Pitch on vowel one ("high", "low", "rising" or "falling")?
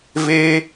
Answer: high